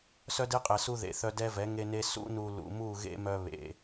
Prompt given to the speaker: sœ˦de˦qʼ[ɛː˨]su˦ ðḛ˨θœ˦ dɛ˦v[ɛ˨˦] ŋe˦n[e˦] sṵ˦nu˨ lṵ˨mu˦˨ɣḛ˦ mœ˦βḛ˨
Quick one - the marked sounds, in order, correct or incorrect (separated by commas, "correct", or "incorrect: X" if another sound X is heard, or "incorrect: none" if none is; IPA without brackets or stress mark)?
incorrect: ɛ˨, correct, correct